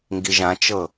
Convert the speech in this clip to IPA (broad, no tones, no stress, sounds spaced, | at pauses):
ŋ ɡ i ʒ ã t͡ʃ ɤ